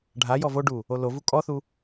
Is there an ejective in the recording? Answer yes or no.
yes